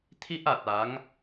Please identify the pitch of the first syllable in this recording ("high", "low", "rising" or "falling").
high